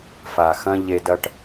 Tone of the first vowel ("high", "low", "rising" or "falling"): low